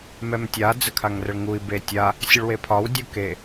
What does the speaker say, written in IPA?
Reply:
m ɛ m tʲ a d͡z ə kʰ a ŋ r ə ɭ ŋ u i̯ b e tʲ a | sʲ ə ɭ w e pʰ ɒ w dʲ u k e

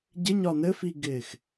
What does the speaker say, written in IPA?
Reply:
ɟ ɪ ɲ ɒ n ɘ f i ɡ ɪː x

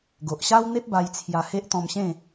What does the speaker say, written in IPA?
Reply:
ɡ o˨ ʔ ɕ a˦ w n̪ e˦ p̚ b a˧ j t͡sʰ j a˧ h e˦ ʔ t̪ ɔ̃˧ m ɕ ẽ˥˧

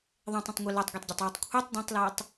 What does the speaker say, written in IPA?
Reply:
ðˤ ɛ̃ tˤ ɛ̃ tˤ ŋʷ e l ɜ tˤ ɡʷ e tˤ ɟ a tˤ w ɨ tˤ kʷʰ i tˤ d ɛ̃ tˤ l a tˤ

